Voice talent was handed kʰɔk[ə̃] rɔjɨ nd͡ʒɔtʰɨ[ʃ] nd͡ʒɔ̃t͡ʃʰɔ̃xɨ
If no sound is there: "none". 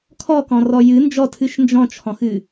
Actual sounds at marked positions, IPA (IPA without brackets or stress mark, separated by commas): ɔ̃, ʃ